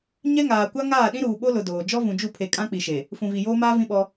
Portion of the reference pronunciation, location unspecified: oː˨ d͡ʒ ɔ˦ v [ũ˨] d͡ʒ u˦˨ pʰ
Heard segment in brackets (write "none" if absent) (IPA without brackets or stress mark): ũ˨